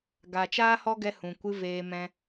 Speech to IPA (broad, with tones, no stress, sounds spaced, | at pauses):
ɡ a˨ t͡ʃ aː˦ h ɔ˦ ɡ ɛ˧ h ũ˨ kʷ ɨ˧ v eː˧ m ɛ̃˧